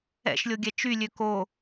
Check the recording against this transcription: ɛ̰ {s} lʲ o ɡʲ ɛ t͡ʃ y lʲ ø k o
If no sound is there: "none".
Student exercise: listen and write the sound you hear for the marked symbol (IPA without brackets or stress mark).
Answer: ʃ